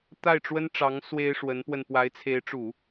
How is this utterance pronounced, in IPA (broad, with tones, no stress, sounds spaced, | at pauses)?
t̪ a˥˩ ɪ̯ ʈ͡ʂ w ə˥ n ʈ͡ʂ ɑ˧˥ ŋ s w e˥ ɪ̯ ʂ w ə˧˥ n p w ə˧ n p w a˧˥ ɪ̯ t͡sʰ e˧˥ ɪ̯ ʈ͡ʂ u˨˩˦